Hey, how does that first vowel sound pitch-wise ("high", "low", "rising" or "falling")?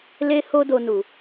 high